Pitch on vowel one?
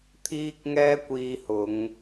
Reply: high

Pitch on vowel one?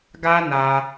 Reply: high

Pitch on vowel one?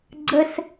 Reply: high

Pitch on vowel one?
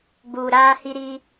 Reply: low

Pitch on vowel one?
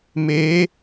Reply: rising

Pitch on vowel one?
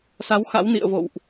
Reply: rising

